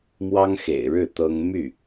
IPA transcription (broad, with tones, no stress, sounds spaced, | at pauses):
m w ɑ˥ ŋ x ḛ˨˩ ɪ̯ ɻ ɻ̩˥˩ t̪ ɤ˥ ŋ m y˥˩